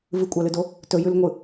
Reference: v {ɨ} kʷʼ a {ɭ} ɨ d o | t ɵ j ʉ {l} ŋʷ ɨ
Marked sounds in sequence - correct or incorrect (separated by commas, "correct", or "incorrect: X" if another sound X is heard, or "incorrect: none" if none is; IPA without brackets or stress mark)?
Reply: correct, incorrect: l, correct